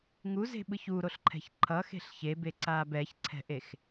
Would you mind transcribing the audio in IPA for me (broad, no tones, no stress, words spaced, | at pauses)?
ŋuze̤ɓɯç uɾoɬǃʰɛ̤ç ǃʰʌxe̤ɬ çebeǀaːb ɛçǀʰɛ̤ʔex